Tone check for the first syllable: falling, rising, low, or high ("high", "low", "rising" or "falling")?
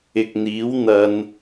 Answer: low